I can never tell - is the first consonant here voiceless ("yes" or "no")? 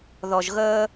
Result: no